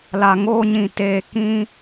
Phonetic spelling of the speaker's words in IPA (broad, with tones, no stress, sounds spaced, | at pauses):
l a˨ ŋ oː˦ ɲ ĩ˨ t eː˨ k ĩ˦